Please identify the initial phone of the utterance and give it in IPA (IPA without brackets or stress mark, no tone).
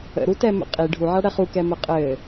ə̰